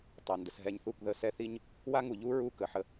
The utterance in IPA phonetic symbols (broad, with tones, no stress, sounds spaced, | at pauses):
tˤ ɑ˨ n d ə˨ s ɦ ɛ˧ ɲ θ u˦˨ k ð ə˧ s ɛ˦ θ i˦ ɲ | w a˦ ŋ u˨ ʎ u˦ ɹ u˦ k ə˨ ħ ə˧